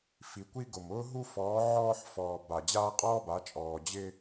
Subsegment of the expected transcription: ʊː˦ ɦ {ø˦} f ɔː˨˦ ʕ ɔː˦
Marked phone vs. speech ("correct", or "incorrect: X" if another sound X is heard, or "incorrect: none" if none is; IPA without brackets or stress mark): incorrect: u˦